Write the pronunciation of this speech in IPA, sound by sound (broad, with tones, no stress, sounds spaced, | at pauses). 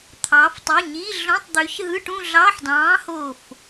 t̪ʰ ɑ˩˧ f tˤ u˩˧˩ ɲ i˧˥˧ ɮ õ˧˥˧ tˤ d̪ ø˨˥ ç ɦ ɯ˧˥˧ ʈ ũ˥˧ ɮ ɑ˧˥˧ ħ d ɑ̃ː˨˥ h o˧˩ f